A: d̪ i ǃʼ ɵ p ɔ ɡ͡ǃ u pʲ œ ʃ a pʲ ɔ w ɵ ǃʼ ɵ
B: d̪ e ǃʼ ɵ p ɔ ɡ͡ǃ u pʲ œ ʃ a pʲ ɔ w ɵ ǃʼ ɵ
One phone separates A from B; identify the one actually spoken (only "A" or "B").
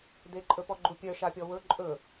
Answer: B